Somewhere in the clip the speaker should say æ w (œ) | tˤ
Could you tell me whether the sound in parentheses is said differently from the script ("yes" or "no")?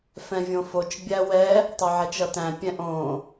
yes